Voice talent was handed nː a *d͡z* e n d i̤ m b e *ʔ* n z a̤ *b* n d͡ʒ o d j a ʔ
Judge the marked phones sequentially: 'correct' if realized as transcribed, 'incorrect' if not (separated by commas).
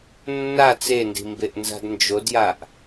incorrect, correct, incorrect